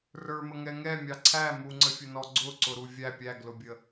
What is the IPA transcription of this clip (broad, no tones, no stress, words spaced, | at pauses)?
rə˞mə ŋɛŋɛmʲɑ ǀʰæ muŋ͡ǀəfʲʊnɔ ɡ͡ǀʊ ǀʊɾuvʲæ pʲæɡlʊbʲə